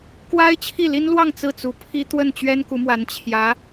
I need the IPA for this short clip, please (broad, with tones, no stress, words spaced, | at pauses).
kwa˥ɪ̯t͡ɕʰi˥˩li˥nlwɑ˥˧ŋ t͡sɹ̩˥˩t͡su˧˥pʰi˥ t̪wə˥˩nt͡ɕɥɛ˥n ku˧˥mwa˧˥n t͡ɕʰjä˧˥